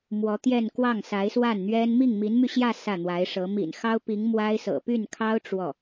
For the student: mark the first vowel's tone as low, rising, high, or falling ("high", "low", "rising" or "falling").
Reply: rising